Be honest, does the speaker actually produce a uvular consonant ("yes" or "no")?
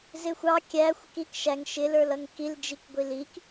no